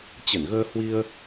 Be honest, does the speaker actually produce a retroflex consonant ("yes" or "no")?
no